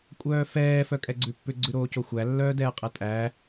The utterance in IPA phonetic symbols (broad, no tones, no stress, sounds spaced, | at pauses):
kʷʼ œː f ɛː f œ kʼ ɛ ɡ͡ǀ ʉ pː ʏ ɡ͡ǀ ʉ ɾ oː c o xʷ æ lː œː d ɛː qʼ ɛ tʼ æː